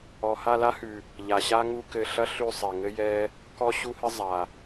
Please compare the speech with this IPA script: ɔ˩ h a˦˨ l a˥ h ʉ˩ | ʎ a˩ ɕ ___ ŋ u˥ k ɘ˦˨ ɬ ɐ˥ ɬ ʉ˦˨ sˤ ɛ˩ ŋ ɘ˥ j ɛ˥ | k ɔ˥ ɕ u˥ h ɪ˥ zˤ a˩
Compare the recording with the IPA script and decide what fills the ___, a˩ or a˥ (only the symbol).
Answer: a˥